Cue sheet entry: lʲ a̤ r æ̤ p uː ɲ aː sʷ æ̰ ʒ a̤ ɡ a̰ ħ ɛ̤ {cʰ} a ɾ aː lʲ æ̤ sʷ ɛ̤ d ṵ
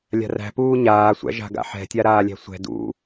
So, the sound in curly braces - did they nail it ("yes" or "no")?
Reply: no